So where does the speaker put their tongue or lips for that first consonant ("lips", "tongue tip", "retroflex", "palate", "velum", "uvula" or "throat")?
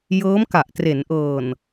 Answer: palate